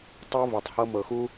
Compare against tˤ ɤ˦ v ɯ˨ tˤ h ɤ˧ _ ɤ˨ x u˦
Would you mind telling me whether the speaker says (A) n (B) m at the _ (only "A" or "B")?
B